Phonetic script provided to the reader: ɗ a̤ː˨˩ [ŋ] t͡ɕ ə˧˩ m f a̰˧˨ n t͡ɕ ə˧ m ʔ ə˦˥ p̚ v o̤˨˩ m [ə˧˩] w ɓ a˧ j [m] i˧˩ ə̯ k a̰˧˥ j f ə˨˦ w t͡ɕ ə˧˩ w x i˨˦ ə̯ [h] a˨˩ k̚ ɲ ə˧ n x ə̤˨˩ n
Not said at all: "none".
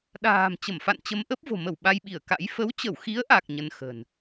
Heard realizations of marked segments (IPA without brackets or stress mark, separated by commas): m, ə˧˩, ɓ, ʔ